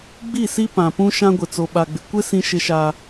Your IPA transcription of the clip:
ɡ͡b i˦˨ s i˦ p ã˨ p ũ˦ ʃ ã˦ ɡʷ ɪ˨ t͡s o˨ ɓ a˨ ɡ͡b ɪ˨ kʷ ɪ˦ s ĩ˦ ʃ ɪ˦ ʃ a˦

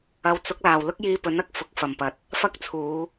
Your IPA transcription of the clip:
ɐ˨˥ w t͡s ʊ˨˥ k̚ l aː˨˩ w l ʊ˥ k̚ j iː˧ p ɵ˨˥ n ɐ˨ k̚ f ʊ˨˥ k̚ f ɐ˨˩ m p ɐ˨ t̚ | f ɐ˥ k̚ t͡sʰ uː˨˧

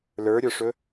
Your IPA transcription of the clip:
l ə˞ ɾʲ ə˞ ʂ ɵ

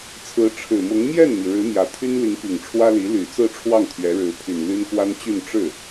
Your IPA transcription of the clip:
t͡sʰ ɹ̩˧˥ ʈ͡ʂʰ ɻ̩˨˩ m ʊ˧˥ ŋ m j ɛ˥˩ n m i˩ ɻ ɻ̩˧˥ m j ä˨˩ t̪ʰ y˥ n l i˧˥ ŋ p i˨˩ ŋ ʈ͡ʂʰ w ä˥ l i˧˥ l y˨˩ t͡s ɹ̩˥˧ ʈ͡ʂʰ w ɑ˥˩ ŋ t̪ʰ ɥ ɛ˧˥ ɻ ɻ̩˧˥ pʰ y˨˩ n l y˥ n k w a˥ n t͡ɕ y˥˧ n ʈ͡ʂ ɻ̩˥˩

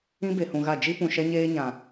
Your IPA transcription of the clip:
ĩ˦ b e˨ h ũ˨ ɣ a˦˨ d͡ʒ i˦ p ũ˨ ʃ ɛ˦ ɲ eː˦ ɲ ã˨

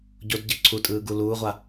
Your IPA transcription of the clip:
ɟ o d ɟ ɯ ǀʰ u tʼ ɯː ɡ u l uː ʁʷ a

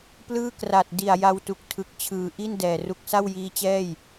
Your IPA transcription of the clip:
p l ɯː˥˩ k r a˨˩ t̚ d i˨˩ a̯ j a˧ w t u˨˩ k̚ tʰ ɯ˨˩ k̚ t͡ɕʰ ɯː˩˦ ʔ i˥˩ n d ɛː˨˩ r u˥˩ k̚ s a˥˩ w j iː˦˥ t͡ɕ ɛː˥˩ j

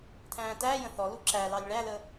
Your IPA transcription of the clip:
tʰ æ̃ː t æː j ə̃ θ ɔ l u ǁ æ l ɑ lʲ ɭ æ l ə

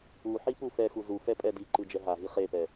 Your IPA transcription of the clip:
u ħ i p u f ɛ x u z u f ɛ pʼ ɛ d i ǃ ɯ d͡ʒ ɛ ɦ a ɦ i χ e p ɛ

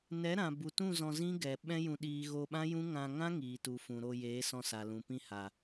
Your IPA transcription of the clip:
n ɛ˨˦ ɾ ã˨ b u˨ t ũ˦˨ z ɔ̃˧ z ĩ˦ ɡ ɛ˨ ɓ ɛ̃˦ j ũ˧ ɗ iː˧ ɣ o˧ ɓ ã˦ j ũ˦ ŋ ã˧ ŋ ã˦ ŋ iː˨ t u˨ f ũ˨ ɾ o˧ j eː˨˦ s ɔ̃˧ s a˨ l ũ˨ p ĩ˧ h a˨

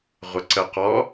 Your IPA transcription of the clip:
ʁʷ ə ǀ ə q ɔ

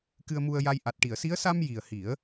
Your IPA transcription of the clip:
k ɨ˧ ə̯ m u˧ ə̯ j a˧ j ʔ a˨˩ t̚ ʈ i˨˩˨ ə̯ s i˧˥ ə̯ s a˧ m j i˨˩ ə̯ h i˨˩˦ ə̯

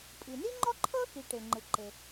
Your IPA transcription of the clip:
pʼ i˩ n i˥ ŋ͡ǃ ɔ˥ ǃʰ ɤ˥ x i˩ ʈ e˩ ŋ͡ǃ ɯ˩ ǃ e˩

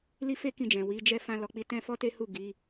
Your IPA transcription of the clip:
l i˦ f e˦ k ĩ˧ d͡ʒ ɛ̃˨ w i˨˦ d͡ʒ ɛ˦ f ã˦ l ɔ˧ k͡p i˦ t ɛ̃˦ f ɔ˦ t e˦ h u˦˨ ɡ i˨˦

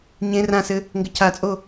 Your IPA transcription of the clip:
ɲ ẽ r ã s ɘ | ŋ ɡ ɘ cʰ a t͡sʼ o

